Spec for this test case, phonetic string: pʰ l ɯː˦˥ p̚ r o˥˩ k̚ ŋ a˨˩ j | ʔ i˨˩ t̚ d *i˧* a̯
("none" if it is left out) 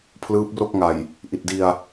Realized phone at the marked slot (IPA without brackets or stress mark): i˧